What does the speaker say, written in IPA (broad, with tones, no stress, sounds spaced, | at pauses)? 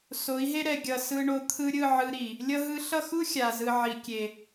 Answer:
s o˨˦ i̯ ɦ e˦ ɾ ɛ˨ ɡʲ ʌ˨ s ɯ˧ ɳ o˧ t̪ʰ ɯ˧ ɾʲ ɯ˦˨ ʕ ɯ˧ ɾ i˨ | lʲ ʌ˧ ɦ ɯ˧ ɬ ʌ˦˨ x u˦ xʲ a˨ z ɯ˨ ʕ i˨ kʲ e˨